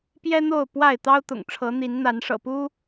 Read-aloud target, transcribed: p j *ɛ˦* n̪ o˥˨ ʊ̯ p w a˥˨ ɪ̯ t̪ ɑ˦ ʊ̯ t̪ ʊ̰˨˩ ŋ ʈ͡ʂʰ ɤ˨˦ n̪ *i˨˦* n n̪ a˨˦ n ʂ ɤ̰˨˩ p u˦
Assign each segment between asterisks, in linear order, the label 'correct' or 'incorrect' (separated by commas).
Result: correct, correct